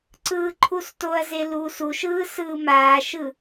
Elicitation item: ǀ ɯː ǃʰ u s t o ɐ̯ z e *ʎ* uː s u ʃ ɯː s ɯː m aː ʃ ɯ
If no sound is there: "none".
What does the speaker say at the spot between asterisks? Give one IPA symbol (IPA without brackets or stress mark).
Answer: l